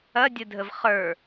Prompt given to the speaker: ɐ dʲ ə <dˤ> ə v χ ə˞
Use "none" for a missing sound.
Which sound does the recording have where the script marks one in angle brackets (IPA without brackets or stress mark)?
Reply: dʱ